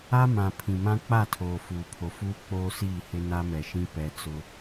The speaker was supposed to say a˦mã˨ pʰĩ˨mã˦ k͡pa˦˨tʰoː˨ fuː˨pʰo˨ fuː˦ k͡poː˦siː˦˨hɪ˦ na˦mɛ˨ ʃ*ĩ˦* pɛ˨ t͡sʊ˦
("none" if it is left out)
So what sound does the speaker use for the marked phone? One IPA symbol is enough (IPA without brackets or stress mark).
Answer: ĩ˦